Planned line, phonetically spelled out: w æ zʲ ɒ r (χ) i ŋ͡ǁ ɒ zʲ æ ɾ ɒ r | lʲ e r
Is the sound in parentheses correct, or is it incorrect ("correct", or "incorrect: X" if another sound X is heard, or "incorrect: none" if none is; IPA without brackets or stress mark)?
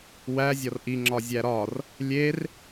incorrect: ʔ